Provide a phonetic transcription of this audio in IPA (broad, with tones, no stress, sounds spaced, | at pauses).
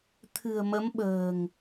t̪ʰ ɨ̤˨˩ ə̯ m ə˨˦ m ɓ ə̤ː˨˩ ŋ